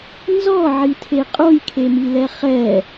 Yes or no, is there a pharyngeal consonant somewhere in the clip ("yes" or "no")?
yes